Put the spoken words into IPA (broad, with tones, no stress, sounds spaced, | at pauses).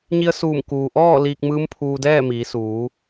ɲ i˧ ə̯ s uː˧˩ m k uː˩ ʔ ɔː˥˨ l iː˧ k̚ m ɯː˧˥ m pʰ uː˧ d ɛː˥˨ m iː˩˧ s uː˩˧